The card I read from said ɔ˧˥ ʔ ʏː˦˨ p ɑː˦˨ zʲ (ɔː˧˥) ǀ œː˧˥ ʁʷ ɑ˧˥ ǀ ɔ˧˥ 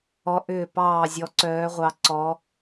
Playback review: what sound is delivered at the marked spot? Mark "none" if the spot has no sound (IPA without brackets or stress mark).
ɔ˧˥